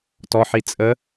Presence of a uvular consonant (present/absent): absent